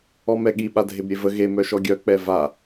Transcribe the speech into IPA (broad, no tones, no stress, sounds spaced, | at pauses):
ɔ m ɛ ɠ i ɓ a dʱ e b ɾʲ e v ə ɣ e m œ ʃ ɔ ɡʲ œ k͡p ɛ v a